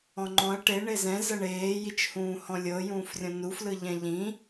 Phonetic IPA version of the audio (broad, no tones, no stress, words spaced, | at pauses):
ɔ̃ŋ͡ǃɔ̃ɐ̯ ʈe ɳezɛ̃ zɤɳeː jit͡ʃhũːhɔ̃lʲɤ jũːfrʲɔ̃nu flɯʎɛ̃ʎĩ